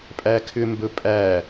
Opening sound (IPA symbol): pʼ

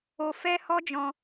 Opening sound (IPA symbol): o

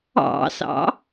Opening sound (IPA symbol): ɑ̰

